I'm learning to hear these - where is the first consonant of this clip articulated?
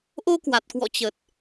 throat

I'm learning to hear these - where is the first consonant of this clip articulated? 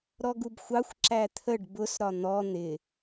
tongue tip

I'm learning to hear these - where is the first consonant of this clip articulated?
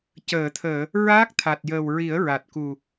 palate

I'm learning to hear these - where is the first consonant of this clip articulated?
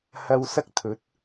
throat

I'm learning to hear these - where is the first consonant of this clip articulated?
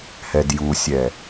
throat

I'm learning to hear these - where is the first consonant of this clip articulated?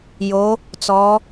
palate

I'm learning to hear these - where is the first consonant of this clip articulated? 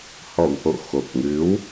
throat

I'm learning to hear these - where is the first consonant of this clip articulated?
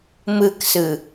lips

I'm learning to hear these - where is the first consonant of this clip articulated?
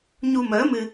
palate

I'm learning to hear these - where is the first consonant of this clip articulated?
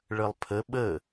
retroflex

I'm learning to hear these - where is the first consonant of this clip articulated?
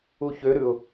palate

